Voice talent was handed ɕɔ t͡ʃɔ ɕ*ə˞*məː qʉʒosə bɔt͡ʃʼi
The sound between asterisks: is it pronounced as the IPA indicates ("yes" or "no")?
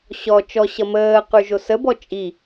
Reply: no